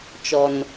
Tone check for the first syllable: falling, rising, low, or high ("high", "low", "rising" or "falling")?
low